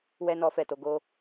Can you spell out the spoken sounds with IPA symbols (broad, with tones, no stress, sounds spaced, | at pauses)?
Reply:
w ɛ˦ n ɔ˦ f ɛ˦˨ t o˨˦ ɡ o˧